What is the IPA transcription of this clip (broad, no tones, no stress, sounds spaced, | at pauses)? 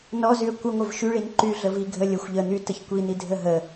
n ɔ z y ə̯ kʷ ə ŋʷ ə v ʃ y ɭ i n ǃ y ɮ ə v i ɡʱ ə lʲ ə xʷ ʎ ə n̪ y t ə ç kʷ i n̪ i dʱ ə ɦ ə